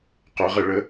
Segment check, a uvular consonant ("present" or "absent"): present